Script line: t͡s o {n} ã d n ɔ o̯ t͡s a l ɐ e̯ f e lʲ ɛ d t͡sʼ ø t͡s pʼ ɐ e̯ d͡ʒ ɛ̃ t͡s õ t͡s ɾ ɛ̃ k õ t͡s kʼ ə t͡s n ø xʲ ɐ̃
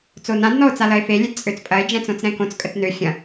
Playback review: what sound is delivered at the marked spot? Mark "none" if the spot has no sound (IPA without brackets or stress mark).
n